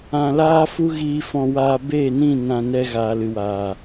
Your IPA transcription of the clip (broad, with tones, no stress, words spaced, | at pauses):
ã˧laː˦ fu˦ɣiː˧fɔ̃˧waː˧ beː˦˨nĩ˦˨ nã˧ nɛ˧ɣaː˨lɨ˨waː˨